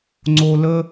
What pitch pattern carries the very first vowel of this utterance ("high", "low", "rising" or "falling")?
low